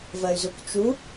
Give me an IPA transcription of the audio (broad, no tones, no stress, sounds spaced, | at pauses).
v ɜ y̯ z u k t͡ʃ u